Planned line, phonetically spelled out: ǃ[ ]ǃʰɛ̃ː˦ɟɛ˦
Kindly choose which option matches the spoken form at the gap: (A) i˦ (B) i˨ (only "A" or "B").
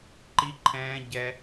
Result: A